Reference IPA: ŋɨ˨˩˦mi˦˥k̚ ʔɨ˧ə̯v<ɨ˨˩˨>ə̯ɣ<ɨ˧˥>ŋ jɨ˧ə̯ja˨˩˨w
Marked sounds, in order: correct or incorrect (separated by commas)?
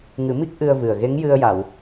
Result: incorrect, incorrect